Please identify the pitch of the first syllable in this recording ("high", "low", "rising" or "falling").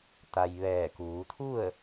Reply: low